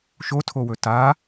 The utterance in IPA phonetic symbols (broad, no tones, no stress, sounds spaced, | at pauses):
ʃ o tʰ o w ɵ t a